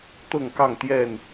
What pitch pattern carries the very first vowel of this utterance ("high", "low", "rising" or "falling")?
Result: falling